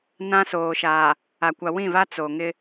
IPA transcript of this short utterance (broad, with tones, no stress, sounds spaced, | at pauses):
n ã˦ s oː˨ ʃ aː˨ | a˨ kʷ a˨ w ĩ˦˨ v a˦ t͡s o˨ ŋ ɪ˦